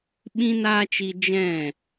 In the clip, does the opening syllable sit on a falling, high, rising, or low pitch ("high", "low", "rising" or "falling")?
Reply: high